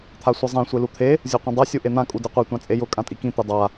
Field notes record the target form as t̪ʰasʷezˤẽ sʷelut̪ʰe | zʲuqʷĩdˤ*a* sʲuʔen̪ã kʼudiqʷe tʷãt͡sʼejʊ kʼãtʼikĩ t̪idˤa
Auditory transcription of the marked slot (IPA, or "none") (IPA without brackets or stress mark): a